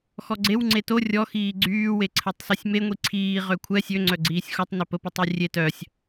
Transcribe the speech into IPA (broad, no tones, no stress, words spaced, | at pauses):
xɔɡ͡ǀew ŋ͡ǀeto rʲɔxiː ɡ͡ǀyː weǀʰɛtˤsɛsʲme ŋʷiǀʰiː ʁøkʷʰɛ sʲøŋ͡ǀœ ɡ͡ǀiːsʲxotˤ nɛpəpə tˤyrʲe tœsʲ